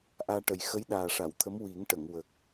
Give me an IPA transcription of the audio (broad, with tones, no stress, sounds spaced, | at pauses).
ʔ aː˧ ʈ ə˨˩ j x ə˧˥ j ɗ aː˨˩ ʂ a˨˩˨ w t̪ʰ ə˧˥ m w i˨˩˦ ŋ ʈ ə˨˩˨ ŋ w ə˨˩ k̚